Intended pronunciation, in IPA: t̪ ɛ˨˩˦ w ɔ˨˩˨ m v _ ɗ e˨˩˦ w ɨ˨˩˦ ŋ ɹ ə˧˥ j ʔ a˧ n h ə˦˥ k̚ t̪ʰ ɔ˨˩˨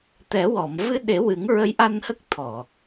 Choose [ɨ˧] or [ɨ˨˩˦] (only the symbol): ɨ˧